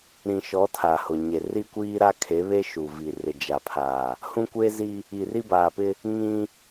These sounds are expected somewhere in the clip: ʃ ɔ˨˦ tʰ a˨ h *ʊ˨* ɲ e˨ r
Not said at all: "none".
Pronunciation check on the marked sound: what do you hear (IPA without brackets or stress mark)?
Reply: ʊ˨